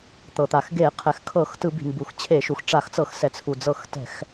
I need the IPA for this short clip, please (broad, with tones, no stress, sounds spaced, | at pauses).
t̪ ɤ˩ t̪ a˩ x ɡ e˧˩˧ qʰ ɛ˩ x kʰ ɤ˧˩˧ x t ɯ˧˩˧ b i̤˩ m b u˩ x t͡ɕʰ e˧˩˧ ʃ u˩ x ʈ͡ʂ a˧˩˧ x t͡s ɤ˧˩˧ x s ɛ˩ t͡sʰ u˩ d͡z ɤ˧˩˧ x t ɛ̤˧˩˧ x